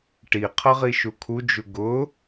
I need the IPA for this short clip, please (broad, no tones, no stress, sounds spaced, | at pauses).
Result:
ʈ i qʰ ʌ ʁ i ʃ u kʰ u d͡ʒ u ɡ ʊ